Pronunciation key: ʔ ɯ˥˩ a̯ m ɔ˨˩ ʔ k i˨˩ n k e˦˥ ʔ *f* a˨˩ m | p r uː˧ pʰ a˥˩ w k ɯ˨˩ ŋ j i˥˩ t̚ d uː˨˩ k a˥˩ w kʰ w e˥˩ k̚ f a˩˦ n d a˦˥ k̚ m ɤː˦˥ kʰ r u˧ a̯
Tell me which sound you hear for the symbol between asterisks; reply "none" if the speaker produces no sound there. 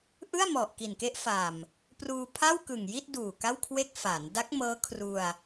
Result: f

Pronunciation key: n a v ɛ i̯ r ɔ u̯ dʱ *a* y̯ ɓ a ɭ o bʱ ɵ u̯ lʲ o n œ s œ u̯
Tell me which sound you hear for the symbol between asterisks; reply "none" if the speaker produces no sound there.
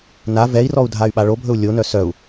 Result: a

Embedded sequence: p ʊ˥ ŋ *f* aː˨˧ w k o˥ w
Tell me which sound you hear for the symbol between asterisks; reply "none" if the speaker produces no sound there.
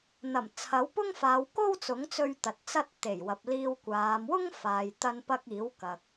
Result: f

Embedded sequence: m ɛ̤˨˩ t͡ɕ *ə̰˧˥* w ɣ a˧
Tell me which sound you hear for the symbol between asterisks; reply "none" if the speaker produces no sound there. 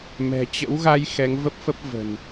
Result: ə̰˧˥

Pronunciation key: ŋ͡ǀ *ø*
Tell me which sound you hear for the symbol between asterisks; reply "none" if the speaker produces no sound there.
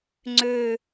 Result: ø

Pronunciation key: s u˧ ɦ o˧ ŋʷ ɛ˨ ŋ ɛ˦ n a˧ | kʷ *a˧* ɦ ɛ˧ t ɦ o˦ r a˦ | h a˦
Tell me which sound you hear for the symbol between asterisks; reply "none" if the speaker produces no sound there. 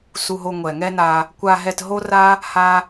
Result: a˧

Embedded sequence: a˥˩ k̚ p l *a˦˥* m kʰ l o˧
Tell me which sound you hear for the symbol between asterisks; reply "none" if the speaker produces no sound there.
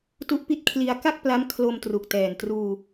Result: a˦˥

